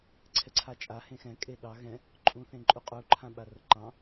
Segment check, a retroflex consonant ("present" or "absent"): absent